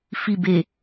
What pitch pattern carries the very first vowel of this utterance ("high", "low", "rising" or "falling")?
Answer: low